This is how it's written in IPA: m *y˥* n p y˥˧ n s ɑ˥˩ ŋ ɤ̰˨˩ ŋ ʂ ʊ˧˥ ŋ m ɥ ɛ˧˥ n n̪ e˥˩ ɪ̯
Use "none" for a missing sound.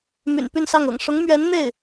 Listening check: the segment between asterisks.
y̰˨˩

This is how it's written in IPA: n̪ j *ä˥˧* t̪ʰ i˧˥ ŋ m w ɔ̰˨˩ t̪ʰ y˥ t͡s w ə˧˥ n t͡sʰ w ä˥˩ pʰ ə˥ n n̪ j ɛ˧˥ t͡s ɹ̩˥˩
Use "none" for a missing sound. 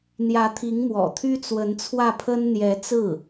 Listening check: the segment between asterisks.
ä˧˥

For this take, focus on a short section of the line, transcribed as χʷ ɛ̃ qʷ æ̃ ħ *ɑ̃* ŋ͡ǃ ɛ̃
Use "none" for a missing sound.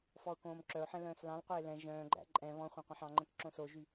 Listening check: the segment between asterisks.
ɑ̃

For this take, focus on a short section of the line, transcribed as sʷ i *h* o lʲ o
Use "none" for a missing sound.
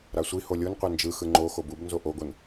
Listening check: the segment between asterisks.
h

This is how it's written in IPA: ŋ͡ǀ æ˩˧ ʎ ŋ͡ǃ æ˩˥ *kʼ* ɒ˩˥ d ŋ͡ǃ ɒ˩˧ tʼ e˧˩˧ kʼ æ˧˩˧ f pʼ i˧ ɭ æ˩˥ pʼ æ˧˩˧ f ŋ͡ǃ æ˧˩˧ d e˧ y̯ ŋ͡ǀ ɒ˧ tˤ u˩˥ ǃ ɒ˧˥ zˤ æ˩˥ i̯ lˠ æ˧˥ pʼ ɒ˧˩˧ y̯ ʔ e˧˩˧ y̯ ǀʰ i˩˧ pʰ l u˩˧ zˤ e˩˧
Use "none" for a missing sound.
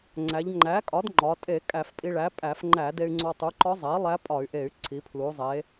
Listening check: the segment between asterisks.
kʼ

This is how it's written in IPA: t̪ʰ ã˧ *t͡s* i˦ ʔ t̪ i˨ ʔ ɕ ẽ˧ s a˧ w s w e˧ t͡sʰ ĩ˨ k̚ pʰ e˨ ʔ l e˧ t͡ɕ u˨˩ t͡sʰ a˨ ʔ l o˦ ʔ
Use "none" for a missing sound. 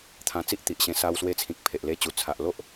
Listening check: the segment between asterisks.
t͡s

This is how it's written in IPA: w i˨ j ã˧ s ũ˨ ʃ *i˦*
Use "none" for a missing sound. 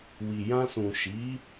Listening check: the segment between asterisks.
i˨˦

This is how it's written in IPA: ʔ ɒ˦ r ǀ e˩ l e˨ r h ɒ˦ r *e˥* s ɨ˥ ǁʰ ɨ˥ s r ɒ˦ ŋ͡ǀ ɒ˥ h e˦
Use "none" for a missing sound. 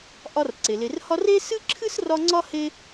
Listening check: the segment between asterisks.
e˦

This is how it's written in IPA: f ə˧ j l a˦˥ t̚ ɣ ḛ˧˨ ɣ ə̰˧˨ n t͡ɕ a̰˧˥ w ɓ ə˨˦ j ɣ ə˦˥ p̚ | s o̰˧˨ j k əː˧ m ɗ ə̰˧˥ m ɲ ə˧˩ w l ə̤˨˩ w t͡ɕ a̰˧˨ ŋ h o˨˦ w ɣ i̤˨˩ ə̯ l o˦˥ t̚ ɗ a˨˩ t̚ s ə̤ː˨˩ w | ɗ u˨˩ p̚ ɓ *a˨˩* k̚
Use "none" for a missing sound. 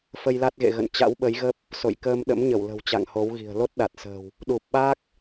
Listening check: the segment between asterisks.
a˦˥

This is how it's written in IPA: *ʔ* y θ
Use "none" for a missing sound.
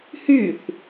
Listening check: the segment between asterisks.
h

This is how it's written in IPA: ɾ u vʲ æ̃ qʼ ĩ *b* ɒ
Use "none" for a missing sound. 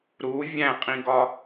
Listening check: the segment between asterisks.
ɡ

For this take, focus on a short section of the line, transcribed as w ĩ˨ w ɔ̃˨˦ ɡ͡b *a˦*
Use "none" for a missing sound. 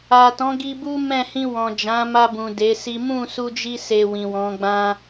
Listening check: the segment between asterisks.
ã˦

